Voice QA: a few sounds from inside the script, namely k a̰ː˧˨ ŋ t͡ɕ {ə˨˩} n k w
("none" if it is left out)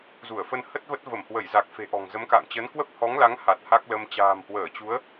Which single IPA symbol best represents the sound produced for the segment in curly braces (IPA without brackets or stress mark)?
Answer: ə˨˦